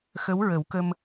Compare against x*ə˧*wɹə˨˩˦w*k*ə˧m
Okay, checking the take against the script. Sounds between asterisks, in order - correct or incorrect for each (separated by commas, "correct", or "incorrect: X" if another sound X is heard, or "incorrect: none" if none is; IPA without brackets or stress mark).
incorrect: ə˧˥, correct